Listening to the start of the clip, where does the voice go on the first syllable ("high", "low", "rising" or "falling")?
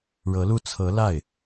rising